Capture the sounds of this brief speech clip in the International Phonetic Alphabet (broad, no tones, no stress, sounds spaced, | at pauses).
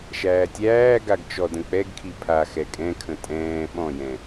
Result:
ʃ æː tʲ æː ɡ a ɡ t͡ʃ ɔ d ə̃ k͡p ɛ ɡ kʰ i pʰ a x ɛ kʼ ɛ̃ kʰ ə̃ tʼ ɛ̃ː ɓ ɔ̃ j ɛ̃